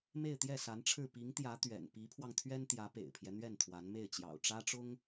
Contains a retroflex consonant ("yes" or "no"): yes